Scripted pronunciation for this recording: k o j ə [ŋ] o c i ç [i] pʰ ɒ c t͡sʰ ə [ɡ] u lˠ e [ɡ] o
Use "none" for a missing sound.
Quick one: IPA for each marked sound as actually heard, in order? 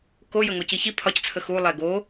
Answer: ŋ, i, x, ɡ

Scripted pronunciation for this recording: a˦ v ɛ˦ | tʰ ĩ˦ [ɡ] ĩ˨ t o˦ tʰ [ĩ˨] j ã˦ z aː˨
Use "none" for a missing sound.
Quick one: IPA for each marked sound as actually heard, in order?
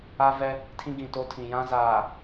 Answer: ɡ, ĩ˨

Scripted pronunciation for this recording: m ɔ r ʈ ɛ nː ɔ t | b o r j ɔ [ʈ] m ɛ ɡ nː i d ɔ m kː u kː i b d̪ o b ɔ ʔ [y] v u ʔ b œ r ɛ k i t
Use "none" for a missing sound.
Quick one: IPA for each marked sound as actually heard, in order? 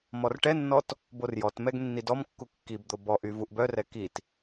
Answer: t, y

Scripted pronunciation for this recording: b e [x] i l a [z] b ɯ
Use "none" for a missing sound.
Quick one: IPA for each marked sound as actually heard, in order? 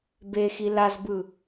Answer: x, z

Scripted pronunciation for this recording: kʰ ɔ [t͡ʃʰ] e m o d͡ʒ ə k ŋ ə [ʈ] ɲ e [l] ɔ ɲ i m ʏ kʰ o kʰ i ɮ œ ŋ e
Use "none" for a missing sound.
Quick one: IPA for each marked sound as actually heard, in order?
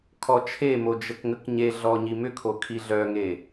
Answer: t͡ʃʰ, k, ɮ

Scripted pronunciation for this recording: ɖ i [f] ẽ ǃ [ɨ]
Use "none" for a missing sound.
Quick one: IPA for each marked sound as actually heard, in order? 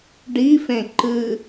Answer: f, ɨ

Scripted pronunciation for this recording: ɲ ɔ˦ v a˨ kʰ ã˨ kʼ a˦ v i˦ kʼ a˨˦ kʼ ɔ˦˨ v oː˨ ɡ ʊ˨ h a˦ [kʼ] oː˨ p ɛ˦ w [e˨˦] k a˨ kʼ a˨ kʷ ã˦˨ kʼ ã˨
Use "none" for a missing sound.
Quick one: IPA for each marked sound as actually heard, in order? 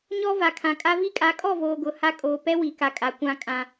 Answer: kʼ, i˨˦

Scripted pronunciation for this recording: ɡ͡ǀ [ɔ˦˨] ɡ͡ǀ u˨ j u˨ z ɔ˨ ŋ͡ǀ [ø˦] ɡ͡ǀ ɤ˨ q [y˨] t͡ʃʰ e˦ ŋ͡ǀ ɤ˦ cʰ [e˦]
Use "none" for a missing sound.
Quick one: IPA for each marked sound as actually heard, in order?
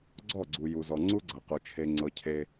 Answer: ɔ˦˨, u˦, u˨, e˦

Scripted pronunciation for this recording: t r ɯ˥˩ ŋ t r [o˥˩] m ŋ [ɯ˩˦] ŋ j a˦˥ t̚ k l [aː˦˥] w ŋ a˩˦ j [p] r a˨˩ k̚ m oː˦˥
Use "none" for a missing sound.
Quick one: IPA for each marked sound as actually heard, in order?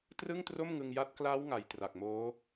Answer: o˥˩, ɯ˧, aː˦˥, t

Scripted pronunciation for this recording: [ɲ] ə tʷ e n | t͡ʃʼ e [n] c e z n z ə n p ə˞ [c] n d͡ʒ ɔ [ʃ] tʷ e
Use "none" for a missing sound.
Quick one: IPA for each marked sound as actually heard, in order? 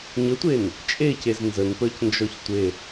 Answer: ɲ, none, c, ç

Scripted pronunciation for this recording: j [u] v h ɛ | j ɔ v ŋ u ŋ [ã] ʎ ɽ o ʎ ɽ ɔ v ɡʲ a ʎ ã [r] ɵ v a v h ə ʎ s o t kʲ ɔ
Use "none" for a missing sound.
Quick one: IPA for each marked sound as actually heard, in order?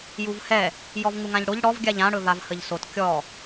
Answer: u, ã, ɽ

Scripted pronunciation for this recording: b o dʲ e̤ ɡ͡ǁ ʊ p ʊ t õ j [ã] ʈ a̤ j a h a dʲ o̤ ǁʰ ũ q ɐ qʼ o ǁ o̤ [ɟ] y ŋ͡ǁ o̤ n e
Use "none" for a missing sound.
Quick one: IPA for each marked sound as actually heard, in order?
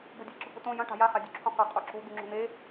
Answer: ɐ̃, d̪

